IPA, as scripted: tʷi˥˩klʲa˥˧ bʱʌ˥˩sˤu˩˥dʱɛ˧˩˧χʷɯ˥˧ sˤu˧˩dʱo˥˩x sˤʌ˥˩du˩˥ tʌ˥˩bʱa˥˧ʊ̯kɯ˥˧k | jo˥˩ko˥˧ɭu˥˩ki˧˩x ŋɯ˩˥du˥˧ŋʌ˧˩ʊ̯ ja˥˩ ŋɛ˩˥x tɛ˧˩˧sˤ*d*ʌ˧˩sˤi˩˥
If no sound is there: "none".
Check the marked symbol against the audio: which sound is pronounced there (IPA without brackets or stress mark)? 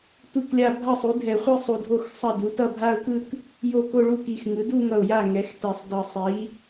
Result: d